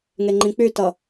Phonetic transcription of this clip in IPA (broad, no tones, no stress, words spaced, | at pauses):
ŋeŋ͡ǃĩk͡pytʌ